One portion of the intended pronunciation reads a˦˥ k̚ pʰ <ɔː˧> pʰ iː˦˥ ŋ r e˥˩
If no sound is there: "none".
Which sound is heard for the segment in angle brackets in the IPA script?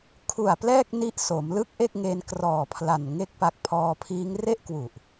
ɔː˧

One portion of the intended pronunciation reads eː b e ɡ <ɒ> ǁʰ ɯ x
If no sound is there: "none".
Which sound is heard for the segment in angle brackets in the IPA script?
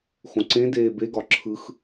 ɒ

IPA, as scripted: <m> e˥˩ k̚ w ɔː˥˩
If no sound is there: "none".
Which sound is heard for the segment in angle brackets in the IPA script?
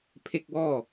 pʰ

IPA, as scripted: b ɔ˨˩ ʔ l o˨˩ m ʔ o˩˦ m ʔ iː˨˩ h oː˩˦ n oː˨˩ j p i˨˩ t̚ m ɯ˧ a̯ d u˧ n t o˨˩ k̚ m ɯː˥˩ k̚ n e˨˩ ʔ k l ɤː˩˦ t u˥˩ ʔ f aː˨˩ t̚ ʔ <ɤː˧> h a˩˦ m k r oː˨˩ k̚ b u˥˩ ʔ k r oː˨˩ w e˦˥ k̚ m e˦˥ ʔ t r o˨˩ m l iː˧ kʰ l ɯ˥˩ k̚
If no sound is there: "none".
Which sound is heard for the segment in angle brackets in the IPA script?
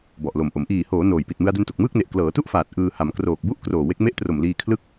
ɯː˧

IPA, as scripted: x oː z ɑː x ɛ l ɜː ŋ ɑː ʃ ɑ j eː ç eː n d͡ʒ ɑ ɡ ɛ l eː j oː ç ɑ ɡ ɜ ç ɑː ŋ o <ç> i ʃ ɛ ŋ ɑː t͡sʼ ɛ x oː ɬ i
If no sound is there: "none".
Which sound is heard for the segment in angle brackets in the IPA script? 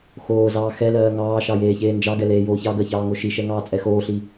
ʃ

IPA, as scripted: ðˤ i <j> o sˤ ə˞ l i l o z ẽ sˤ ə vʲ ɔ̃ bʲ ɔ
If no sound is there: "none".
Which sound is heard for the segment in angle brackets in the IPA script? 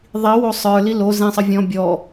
w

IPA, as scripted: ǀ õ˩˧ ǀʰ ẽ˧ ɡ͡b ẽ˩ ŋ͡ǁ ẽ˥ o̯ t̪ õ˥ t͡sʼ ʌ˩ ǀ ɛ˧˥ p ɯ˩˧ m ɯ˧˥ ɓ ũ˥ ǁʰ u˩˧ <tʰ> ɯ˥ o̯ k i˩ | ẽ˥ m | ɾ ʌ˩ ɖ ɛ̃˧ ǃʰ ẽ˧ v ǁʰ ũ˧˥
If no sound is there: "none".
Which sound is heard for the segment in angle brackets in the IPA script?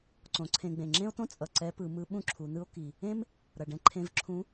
n̪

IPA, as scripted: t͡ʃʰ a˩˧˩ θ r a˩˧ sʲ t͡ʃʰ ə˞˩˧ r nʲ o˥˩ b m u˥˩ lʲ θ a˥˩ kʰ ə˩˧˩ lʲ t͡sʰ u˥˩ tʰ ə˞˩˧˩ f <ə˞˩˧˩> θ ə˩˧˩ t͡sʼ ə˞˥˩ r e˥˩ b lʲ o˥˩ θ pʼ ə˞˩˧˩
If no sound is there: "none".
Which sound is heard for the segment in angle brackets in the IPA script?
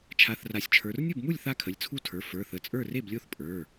ə˞˩˧˩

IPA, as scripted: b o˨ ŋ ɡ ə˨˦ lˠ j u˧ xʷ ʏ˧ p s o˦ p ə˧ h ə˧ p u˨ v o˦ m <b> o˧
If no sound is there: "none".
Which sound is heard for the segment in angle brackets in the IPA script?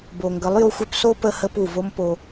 p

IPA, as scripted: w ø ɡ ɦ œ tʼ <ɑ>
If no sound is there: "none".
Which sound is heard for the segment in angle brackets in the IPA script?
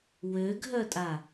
a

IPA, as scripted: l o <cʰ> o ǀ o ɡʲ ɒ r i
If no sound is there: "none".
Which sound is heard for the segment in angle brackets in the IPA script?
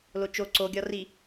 t͡ʃ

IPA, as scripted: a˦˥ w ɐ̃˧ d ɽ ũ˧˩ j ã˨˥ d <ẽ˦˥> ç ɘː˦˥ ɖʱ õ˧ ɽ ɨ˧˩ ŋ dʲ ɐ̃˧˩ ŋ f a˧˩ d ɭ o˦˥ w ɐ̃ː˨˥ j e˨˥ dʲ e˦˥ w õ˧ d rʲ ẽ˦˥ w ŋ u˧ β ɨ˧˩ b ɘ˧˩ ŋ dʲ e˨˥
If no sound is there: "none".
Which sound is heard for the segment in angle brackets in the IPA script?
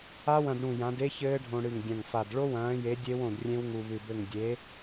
e˦˥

